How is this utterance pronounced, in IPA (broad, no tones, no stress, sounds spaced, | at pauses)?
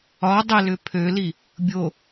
ɒ dˤ ə l ʏ pʰ ø l i | bʲ o